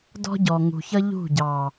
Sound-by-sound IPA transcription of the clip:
dɔ̤˦ɟɔ˨ŋṳ˨çʌ˦ ʎṳ˦˨ɟɑ˨

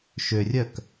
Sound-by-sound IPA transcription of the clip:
ʃørʲœk

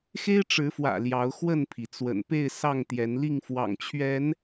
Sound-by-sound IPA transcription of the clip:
xe˦ɪ̯ʈ͡ʂɻ̩˨˦fwä̰˨˩ ljɑ˨˦ʊ̯xwə˥˨npʰi˩ t͡swə̰˨˩npe˥˨ɪ̯ sɑ˥˨ŋ t̪jɛ˨˦nli˥˨ŋ fwɑ̰˨˩ŋt͡ɕʰɥɛ˨˦n

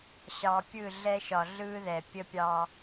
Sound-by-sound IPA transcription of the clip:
ɕɑ˨pʲɯ˦˨ ɮɛ˦ʃɒ˨ ɮɯː˦ ðɛ˨ pʲə˦ pʲɑ˦

